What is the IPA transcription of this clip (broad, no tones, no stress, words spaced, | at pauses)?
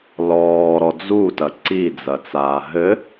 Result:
lɔːɾɔ d͡zutɐ ǀid͡zɐt͡saː ɦɘ